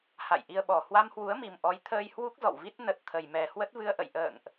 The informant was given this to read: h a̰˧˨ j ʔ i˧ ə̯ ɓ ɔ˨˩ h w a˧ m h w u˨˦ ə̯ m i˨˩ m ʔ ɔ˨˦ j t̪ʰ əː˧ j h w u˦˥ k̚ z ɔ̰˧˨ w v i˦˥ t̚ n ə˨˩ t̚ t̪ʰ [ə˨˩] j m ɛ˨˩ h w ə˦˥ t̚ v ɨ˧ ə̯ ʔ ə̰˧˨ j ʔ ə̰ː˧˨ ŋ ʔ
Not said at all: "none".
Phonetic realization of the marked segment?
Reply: ə˨˩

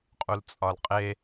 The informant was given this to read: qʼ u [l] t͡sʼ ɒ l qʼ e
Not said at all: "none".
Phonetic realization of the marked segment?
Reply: l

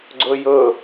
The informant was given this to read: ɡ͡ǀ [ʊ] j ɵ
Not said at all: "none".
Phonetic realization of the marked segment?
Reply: ɵ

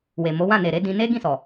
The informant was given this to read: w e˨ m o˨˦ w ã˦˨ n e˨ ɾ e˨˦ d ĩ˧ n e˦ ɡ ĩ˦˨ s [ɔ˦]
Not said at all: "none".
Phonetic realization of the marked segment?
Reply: ɔ˨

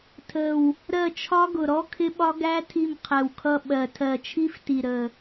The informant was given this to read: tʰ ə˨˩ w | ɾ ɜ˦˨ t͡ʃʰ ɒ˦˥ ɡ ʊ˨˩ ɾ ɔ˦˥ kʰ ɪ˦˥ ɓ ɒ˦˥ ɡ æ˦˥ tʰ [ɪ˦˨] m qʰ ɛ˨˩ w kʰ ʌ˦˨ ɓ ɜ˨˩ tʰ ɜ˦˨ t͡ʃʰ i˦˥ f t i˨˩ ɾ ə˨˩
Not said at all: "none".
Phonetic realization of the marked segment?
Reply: i˦˨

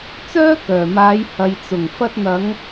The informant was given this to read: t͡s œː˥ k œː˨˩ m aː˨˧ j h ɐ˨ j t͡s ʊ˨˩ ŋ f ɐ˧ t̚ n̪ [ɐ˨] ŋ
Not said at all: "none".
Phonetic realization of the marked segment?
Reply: ɐ˨˧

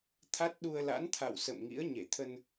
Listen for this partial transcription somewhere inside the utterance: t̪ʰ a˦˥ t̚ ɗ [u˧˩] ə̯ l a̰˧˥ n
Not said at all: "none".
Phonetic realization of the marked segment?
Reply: u˧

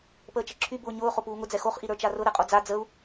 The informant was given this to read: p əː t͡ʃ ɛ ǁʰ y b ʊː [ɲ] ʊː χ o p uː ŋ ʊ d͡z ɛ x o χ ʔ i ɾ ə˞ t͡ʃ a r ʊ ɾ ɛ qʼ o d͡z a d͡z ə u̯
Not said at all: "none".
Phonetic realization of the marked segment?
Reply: ɲ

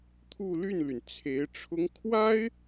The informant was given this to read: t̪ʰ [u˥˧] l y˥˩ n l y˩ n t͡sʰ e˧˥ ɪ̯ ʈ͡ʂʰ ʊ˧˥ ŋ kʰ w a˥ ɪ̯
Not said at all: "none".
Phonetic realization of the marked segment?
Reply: u˥˧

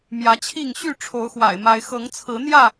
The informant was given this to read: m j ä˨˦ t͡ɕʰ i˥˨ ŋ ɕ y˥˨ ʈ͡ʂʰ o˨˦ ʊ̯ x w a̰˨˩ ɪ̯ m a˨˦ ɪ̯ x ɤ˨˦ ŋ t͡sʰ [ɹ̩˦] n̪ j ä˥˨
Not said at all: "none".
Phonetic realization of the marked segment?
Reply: ɹ̩˨˦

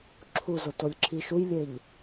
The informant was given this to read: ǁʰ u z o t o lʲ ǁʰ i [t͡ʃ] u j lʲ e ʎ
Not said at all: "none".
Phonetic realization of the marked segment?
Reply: ʃ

